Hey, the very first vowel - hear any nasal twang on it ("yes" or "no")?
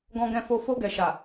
yes